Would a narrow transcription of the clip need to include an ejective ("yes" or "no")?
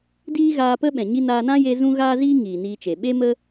no